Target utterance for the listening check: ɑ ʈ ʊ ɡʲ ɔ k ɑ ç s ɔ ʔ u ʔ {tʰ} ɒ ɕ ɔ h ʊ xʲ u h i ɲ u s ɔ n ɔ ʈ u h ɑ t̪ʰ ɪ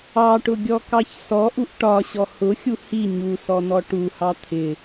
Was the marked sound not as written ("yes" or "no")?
yes